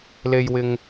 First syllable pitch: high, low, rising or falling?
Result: low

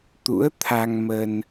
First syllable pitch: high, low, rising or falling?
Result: rising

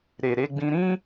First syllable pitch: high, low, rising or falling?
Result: low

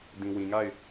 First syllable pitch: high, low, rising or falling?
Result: low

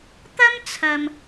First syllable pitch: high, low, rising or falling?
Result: high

